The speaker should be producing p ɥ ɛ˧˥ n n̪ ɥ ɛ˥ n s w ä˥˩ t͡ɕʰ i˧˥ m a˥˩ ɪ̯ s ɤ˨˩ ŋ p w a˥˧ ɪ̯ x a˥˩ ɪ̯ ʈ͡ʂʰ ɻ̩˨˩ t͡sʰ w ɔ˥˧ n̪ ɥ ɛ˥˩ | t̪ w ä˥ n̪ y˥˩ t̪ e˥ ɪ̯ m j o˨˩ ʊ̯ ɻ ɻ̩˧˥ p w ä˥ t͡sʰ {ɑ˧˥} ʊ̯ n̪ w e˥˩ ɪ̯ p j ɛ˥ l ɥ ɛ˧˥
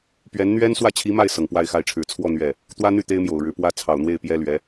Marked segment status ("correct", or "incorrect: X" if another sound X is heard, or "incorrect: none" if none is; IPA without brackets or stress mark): incorrect: ɑ˨˩